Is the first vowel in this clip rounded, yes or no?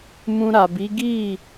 yes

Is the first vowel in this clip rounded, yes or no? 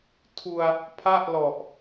yes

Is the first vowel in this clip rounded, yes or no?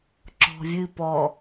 yes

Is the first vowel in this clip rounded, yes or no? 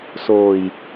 yes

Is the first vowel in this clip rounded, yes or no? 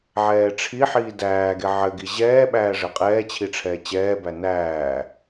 no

